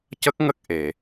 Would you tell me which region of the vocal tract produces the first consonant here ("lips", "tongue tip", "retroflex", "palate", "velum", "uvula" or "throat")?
palate